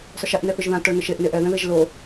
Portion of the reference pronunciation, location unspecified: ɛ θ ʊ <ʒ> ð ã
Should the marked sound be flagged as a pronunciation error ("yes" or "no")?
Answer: no